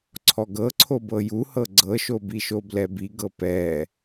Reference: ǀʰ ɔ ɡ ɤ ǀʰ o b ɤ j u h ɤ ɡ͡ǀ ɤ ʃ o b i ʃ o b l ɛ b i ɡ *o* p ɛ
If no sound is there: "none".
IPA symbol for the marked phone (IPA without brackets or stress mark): ɤ